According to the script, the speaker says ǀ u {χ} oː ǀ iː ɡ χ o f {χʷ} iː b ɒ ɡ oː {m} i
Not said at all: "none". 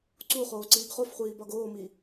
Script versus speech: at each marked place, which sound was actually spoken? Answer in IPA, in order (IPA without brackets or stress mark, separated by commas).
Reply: χ, χʷ, m